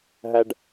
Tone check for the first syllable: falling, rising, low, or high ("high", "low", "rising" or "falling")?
high